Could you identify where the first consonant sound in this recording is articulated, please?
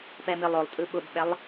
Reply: labial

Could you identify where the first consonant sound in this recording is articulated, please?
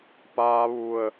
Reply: labial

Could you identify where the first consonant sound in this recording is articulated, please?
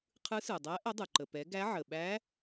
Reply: uvular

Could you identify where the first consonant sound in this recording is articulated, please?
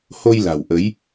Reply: glottal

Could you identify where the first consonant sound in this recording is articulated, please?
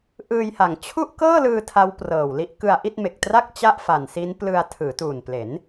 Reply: glottal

